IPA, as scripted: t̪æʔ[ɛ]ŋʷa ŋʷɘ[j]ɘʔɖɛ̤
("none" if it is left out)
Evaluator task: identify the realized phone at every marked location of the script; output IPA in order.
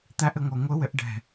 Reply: ɘ, w

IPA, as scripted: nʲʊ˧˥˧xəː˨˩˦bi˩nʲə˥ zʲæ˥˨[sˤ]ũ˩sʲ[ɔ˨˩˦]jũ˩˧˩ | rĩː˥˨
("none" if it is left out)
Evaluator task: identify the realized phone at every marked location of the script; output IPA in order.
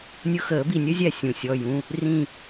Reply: sʲ, ɔ˩˧˩

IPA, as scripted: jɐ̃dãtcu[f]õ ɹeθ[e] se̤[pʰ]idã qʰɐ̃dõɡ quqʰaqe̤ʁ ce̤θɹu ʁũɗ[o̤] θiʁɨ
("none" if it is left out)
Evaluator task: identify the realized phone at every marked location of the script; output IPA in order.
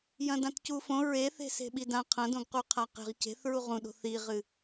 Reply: f, e̤, ɓ, o̤

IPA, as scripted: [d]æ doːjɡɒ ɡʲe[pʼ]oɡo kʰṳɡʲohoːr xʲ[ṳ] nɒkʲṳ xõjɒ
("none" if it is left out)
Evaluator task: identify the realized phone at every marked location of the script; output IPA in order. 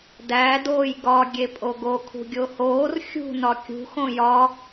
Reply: d, pʼ, ṳ

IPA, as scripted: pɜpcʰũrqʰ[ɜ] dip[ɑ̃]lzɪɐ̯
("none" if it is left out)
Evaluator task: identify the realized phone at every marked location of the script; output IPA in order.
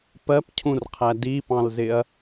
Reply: æ, ɑ̃

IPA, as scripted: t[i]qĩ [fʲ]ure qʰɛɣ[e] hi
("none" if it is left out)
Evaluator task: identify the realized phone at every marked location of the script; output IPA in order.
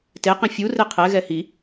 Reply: e, fʲ, ɛ

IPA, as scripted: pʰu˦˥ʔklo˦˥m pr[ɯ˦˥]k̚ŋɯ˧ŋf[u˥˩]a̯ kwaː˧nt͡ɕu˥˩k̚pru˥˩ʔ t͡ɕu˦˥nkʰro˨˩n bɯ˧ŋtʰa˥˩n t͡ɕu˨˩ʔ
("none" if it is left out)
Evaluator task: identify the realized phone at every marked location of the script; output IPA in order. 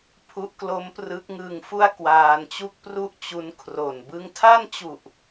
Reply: ɯ˦˥, u˥˩

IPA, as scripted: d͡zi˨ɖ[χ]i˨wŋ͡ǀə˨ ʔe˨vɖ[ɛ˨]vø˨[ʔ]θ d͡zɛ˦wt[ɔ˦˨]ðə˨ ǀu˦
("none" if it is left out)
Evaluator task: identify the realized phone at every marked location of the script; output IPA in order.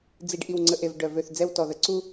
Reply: ʔ, œ˨, none, ɔ˨

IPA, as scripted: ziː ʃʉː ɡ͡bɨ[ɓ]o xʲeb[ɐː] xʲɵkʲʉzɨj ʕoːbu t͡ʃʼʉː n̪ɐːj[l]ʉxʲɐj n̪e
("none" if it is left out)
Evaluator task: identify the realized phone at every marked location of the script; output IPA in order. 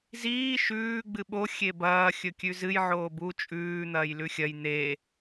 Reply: ɓ, ɐː, l

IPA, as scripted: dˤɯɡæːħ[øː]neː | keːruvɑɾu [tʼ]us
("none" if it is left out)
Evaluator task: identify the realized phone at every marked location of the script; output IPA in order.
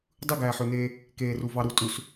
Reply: ø, tʼ

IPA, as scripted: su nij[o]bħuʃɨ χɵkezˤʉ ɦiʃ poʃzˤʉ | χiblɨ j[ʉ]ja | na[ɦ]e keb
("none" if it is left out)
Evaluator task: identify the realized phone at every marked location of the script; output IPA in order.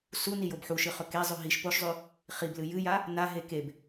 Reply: o, ɨ, ɦ

